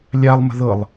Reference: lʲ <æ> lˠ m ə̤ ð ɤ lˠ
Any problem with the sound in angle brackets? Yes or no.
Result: yes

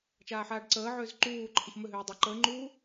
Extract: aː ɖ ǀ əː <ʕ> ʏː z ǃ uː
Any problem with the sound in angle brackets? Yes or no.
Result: no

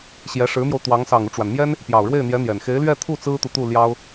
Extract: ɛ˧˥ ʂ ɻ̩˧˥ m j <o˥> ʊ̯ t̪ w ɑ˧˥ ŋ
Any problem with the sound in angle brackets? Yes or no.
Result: yes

